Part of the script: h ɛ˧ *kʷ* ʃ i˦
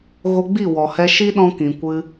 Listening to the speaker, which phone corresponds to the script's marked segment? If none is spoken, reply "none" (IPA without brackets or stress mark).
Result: none